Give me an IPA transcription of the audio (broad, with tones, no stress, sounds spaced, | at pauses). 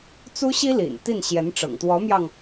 t͡s u˥ ɕ i˥ l ḭ˨˩ n t̪ i˥˩ n ɕ j ɛ˧˥ n ʈ͡ʂ ɤ̰˨˩ ŋ t̪ w ɔ˧˥ m j ɑ˧ ŋ